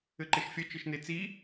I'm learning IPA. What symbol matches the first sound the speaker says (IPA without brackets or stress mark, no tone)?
ɘ